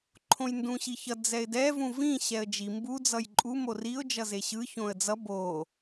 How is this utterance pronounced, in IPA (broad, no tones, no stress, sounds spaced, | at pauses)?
ǃʰ õ j n d ũ ɕ i ç ʌ d͡z ɛ ɪ̯ d ɛ v ũ v ĩ ɕ ɛ ə̯ d͡ʒ i m b u d͡z ʌ j ǃʼ u m o r i ʊ̯ d͡ʒ ʌ z e ɕ ɯ ç õ ə̯ d͡z ʌ b o